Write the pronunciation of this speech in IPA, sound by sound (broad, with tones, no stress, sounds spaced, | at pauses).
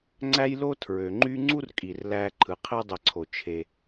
ŋ͡ǀ æ˦ j l o˦ tʰ ɹ ø˩ ŋ͡ǃ y˦ ŋ͡ǀ u˥ r kʼ i˩ r l æ˨ ǃʰ ɯ˩ qʰ e˦ dˤ e˨ ǀʰ o˩ t͡ʃʰ e˩